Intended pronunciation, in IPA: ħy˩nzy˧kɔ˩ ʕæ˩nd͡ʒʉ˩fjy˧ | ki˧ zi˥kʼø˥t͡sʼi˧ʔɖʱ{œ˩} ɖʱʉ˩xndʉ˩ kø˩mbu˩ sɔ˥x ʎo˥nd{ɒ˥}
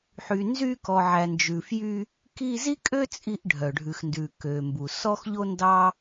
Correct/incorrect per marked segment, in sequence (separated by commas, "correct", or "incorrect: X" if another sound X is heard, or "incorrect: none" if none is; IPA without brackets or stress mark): correct, incorrect: ɑ˥